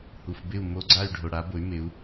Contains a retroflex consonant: yes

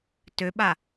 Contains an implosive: yes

